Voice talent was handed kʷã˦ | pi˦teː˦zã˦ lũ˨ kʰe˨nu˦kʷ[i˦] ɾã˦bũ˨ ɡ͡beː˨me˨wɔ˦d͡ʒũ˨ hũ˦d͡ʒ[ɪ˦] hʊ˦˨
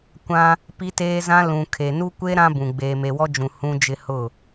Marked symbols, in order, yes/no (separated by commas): no, yes